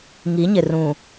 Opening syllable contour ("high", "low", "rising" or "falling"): rising